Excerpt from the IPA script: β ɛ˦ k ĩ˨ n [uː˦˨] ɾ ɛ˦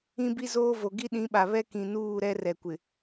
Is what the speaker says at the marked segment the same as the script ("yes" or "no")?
yes